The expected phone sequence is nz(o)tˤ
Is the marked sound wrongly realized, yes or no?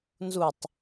yes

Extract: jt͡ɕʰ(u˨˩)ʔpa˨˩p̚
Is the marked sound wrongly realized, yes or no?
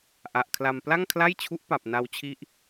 yes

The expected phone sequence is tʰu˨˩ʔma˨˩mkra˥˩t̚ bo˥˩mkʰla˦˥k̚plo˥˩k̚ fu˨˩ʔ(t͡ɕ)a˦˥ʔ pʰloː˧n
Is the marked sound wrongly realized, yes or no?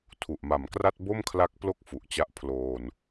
no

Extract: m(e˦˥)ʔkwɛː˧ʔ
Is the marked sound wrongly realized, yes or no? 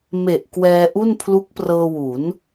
yes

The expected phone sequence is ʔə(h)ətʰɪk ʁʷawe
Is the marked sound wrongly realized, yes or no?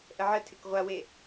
yes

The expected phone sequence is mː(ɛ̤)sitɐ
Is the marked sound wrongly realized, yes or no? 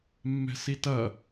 no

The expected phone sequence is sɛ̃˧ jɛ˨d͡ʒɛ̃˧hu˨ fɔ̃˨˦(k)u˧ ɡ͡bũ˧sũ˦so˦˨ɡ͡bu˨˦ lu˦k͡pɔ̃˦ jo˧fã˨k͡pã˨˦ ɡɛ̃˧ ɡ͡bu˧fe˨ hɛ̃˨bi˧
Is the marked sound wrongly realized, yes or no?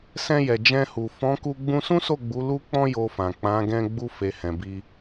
no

